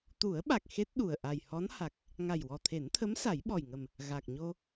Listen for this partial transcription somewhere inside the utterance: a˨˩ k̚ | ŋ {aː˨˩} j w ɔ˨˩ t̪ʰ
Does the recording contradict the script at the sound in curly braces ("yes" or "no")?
yes